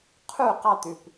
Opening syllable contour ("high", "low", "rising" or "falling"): falling